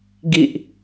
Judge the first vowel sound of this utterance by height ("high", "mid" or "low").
high